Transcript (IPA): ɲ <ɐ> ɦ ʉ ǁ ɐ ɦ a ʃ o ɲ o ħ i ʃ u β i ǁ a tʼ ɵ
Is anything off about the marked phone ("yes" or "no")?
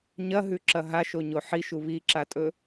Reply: no